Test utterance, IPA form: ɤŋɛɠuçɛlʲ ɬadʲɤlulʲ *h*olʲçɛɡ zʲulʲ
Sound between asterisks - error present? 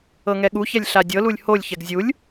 no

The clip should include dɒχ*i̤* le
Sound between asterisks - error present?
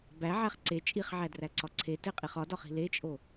no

